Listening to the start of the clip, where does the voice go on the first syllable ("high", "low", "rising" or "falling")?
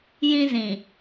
high